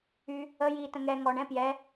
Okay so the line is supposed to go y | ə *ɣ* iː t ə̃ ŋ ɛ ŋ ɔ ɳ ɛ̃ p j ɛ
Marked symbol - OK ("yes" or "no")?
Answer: no